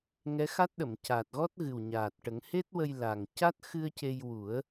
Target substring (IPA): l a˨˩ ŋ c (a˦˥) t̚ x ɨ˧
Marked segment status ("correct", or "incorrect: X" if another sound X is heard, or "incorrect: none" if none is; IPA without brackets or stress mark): correct